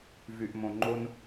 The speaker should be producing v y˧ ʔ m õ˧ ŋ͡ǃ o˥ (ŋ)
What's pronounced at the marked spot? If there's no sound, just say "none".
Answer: n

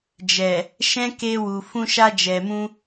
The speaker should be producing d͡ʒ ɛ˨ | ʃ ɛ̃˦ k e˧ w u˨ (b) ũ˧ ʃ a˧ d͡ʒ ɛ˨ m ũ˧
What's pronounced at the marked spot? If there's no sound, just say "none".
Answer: f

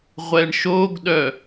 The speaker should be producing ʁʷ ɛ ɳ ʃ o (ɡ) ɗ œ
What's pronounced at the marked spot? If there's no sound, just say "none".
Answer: ɡ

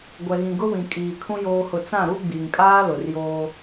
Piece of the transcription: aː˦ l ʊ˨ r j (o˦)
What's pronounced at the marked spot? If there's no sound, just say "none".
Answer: oː˦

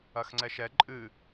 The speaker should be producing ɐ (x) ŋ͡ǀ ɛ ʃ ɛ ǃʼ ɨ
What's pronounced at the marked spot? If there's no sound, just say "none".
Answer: x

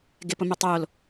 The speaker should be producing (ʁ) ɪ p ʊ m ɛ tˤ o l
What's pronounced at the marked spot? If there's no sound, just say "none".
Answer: ɡ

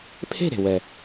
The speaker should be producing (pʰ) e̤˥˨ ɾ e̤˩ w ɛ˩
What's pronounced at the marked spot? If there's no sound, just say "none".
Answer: pʰ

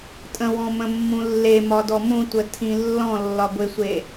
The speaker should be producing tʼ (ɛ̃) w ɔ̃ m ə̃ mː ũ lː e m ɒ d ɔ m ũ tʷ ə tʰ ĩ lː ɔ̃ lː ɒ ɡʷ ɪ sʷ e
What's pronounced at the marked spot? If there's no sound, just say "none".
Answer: ə̃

